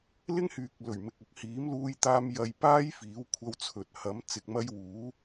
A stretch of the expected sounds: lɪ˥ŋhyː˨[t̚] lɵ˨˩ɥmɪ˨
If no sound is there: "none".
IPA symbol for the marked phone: k̚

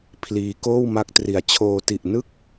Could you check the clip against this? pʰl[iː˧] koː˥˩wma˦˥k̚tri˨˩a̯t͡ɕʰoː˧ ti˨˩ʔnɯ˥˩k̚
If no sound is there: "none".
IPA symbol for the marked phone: iː˧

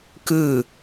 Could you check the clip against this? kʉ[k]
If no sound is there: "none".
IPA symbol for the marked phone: none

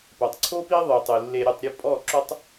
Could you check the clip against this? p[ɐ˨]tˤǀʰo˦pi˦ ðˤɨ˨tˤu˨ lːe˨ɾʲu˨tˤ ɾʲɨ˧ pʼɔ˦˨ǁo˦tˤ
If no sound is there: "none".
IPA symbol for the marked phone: ɐ˨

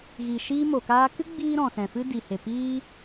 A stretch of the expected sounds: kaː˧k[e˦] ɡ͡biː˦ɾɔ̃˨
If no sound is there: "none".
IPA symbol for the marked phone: ɨ˦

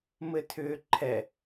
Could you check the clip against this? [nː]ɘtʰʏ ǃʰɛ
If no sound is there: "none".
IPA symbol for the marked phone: m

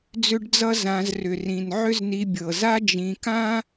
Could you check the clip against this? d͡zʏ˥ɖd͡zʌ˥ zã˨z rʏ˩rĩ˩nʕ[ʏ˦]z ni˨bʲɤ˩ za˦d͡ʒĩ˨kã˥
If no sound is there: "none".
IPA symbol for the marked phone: ʏ˦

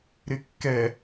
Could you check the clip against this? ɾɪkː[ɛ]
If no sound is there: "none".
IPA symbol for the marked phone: ɛ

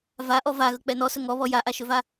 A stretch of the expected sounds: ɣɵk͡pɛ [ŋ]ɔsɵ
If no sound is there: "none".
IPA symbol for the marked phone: n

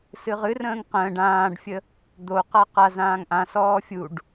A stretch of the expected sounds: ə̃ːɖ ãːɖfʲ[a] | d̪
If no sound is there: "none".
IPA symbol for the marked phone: ə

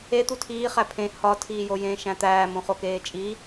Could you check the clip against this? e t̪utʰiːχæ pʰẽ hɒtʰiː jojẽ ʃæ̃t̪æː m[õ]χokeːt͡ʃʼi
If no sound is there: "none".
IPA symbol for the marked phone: õ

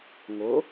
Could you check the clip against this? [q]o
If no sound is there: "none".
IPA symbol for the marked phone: ŋ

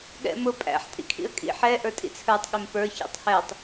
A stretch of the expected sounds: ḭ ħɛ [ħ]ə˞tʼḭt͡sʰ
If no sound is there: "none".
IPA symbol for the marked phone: ʔ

